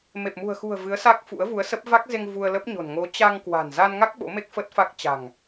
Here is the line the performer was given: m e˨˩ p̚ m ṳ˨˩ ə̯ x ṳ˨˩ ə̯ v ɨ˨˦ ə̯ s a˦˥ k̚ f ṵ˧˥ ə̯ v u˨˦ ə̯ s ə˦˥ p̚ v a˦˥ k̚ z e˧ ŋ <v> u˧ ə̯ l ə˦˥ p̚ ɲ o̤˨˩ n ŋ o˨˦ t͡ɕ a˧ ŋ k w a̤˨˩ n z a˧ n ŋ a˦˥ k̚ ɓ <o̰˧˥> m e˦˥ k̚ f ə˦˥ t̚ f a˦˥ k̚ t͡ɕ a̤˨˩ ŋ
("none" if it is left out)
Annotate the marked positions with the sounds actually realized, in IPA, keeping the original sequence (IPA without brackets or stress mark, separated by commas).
v, o̰˧˥